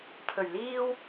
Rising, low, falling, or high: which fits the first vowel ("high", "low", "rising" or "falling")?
low